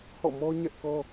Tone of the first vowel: falling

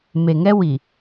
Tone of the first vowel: low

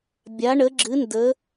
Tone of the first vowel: rising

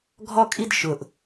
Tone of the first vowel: high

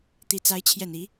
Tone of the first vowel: low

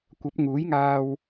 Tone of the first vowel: rising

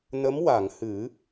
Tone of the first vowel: rising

